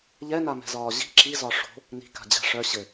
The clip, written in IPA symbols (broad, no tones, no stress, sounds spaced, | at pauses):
ʎ ɛ n a m ɛ̤ z ɒː ʑ i̤ ǁ i z ɒ ʂ o̤ | n i̤ k a̤ d͡ʑ a̤ ʂ œ ɕ ɘ